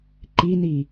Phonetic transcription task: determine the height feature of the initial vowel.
high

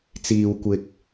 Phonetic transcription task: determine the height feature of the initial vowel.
high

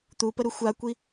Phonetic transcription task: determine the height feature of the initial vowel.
high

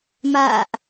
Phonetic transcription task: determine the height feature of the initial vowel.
low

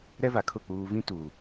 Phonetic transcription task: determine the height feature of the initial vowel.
mid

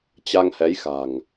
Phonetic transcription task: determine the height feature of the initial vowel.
low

